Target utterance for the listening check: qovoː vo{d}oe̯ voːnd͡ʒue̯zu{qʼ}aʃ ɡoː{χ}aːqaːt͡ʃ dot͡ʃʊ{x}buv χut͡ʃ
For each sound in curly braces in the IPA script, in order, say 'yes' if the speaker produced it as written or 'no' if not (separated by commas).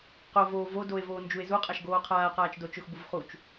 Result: yes, yes, no, yes